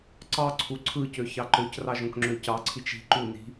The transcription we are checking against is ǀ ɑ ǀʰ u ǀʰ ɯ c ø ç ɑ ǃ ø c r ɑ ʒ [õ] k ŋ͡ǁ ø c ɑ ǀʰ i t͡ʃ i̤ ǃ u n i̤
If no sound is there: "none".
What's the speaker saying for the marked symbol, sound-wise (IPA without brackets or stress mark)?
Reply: õ